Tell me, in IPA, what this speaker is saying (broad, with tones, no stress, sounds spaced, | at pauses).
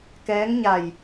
k ɛː˧˥ ŋ ɲ a˧˩ j